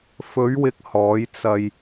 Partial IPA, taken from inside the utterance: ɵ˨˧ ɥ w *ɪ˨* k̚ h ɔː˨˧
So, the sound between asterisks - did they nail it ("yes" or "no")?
yes